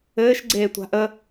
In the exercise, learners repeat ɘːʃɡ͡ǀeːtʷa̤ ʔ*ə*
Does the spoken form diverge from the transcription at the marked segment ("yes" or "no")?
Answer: no